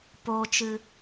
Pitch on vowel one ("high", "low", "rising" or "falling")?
low